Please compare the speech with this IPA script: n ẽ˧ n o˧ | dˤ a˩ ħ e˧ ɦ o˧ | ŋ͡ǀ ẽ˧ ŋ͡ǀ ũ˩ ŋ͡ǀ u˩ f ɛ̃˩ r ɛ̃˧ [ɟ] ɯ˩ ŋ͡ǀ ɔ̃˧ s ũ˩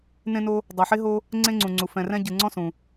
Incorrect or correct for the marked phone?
correct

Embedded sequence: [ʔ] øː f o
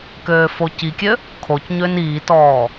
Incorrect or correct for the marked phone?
incorrect: k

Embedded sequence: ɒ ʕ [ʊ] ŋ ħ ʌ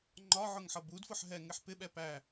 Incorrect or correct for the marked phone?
correct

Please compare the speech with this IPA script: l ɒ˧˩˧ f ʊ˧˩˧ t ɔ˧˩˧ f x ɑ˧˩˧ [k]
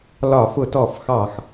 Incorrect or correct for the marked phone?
incorrect: x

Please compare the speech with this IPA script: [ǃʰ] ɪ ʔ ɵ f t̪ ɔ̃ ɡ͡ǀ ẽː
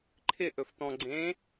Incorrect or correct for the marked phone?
correct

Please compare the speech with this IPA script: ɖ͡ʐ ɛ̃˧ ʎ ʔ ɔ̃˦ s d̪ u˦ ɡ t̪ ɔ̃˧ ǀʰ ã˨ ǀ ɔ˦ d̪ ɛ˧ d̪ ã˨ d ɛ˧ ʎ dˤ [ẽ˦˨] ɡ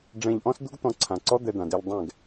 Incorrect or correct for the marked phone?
incorrect: ɛ̃˦˨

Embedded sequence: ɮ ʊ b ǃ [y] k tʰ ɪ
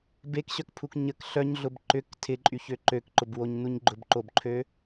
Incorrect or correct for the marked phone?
incorrect: ʏ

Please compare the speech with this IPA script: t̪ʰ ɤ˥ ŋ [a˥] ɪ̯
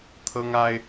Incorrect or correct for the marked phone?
correct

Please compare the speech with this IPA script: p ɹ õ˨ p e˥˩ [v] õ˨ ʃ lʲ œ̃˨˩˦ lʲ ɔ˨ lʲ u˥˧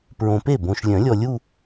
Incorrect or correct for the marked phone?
incorrect: b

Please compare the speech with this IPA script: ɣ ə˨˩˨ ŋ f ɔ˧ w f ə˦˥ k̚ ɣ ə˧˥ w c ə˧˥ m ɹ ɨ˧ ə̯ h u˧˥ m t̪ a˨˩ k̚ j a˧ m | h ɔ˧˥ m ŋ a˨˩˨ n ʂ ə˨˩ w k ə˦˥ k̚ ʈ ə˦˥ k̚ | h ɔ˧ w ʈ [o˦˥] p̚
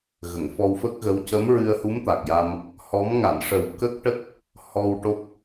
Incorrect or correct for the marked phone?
correct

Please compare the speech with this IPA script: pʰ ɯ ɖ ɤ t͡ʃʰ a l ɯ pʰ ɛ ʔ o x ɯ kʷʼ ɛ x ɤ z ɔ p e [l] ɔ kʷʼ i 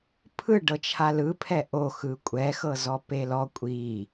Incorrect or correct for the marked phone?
correct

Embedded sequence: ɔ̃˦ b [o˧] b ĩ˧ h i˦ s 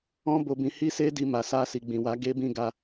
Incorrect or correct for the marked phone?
correct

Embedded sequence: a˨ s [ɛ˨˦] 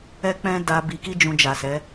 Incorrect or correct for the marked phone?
correct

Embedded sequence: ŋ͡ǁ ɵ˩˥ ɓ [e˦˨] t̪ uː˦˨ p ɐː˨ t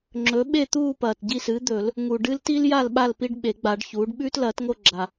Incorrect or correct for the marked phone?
correct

